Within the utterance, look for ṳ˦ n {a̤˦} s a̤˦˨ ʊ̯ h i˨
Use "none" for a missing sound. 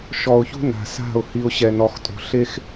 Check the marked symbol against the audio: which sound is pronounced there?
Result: a̤˨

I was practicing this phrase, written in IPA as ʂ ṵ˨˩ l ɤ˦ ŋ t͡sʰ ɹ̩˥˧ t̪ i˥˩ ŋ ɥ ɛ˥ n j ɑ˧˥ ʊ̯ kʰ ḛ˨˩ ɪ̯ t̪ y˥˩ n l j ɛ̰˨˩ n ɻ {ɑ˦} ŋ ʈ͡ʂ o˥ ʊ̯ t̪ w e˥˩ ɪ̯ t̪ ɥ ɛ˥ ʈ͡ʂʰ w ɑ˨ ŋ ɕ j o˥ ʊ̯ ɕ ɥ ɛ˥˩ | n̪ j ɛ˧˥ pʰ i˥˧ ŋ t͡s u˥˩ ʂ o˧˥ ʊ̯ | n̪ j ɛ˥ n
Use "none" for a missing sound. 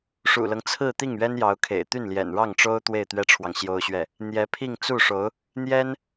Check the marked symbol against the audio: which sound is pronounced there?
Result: ɑ˥˩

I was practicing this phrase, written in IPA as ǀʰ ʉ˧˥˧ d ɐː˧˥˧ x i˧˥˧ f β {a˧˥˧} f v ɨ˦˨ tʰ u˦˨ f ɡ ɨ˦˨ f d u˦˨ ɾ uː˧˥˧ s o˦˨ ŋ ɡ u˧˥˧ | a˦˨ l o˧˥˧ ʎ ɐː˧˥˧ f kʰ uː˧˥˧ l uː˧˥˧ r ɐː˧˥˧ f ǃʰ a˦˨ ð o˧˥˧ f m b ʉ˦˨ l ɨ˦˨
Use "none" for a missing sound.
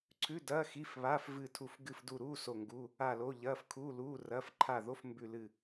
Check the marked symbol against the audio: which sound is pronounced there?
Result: a˧˥˧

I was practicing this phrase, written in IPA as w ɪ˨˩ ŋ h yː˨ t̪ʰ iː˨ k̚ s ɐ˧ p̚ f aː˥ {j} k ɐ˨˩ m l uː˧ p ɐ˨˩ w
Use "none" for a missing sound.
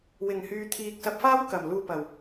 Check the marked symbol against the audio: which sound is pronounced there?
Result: w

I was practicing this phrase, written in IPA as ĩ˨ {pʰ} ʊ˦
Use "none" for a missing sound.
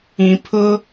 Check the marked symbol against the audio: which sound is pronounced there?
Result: pʰ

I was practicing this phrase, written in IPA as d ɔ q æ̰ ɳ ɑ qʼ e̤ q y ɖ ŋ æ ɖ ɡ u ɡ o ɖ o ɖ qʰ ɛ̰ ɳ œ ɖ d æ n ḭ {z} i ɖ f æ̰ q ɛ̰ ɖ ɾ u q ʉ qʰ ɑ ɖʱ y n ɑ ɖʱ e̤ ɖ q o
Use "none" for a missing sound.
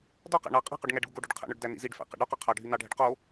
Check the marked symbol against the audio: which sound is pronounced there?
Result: z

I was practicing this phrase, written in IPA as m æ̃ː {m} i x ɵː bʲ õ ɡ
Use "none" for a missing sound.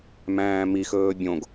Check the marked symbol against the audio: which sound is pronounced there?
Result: m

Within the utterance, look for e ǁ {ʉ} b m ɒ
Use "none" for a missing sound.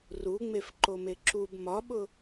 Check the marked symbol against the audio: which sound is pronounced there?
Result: u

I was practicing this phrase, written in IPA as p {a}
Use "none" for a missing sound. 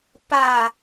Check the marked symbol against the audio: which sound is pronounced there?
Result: a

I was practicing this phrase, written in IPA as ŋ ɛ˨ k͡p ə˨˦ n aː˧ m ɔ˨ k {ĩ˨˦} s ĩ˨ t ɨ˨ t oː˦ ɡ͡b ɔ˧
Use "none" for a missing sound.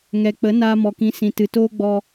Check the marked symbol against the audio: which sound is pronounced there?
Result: ĩ˨˦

